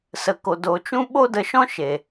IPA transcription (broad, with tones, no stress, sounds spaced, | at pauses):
s ə˨ k o˨ d o˨ t͡ʃ ũ˦ ɓ o˦ d ə˧ ʃ ɔ̃˦ ʃ e˨